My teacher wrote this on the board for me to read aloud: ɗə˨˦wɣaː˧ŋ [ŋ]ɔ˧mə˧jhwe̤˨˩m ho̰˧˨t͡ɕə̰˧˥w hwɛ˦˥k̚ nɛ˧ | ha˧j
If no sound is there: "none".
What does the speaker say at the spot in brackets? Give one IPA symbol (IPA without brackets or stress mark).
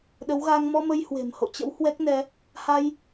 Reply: m